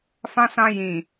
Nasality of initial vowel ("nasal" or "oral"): nasal